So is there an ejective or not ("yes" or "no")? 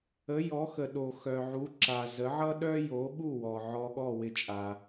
yes